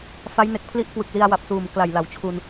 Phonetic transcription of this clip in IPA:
f a˦˥ j n e˨˩ k̚ pʰ l i˥˩ ʔ k w ɯ˨˩ k̚ l i˧ a̯ w a˨˩ p̚ s uː˨˩ m k l a˨˩ j l a˩˦ w t͡ɕʰ u˧ n

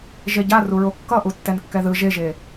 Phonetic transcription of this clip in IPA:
ʒ e ɟ a r u ɹ o kː ʌ ʔ u tː ɛ n kː ɛ ð ɯ ʒ e ʒ e

